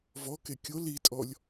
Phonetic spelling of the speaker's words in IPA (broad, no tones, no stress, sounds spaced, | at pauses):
v ɔ k e kʲ o l i tʼ ɔ lʲ